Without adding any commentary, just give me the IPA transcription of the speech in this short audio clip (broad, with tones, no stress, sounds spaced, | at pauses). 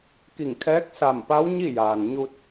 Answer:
k i˧˩ ŋ kʰ ɛː˧˥ k̚ s a˧˩ m p a˧˥ w ɲ i˥˨ j aː˩ n ɲ u˧ t̚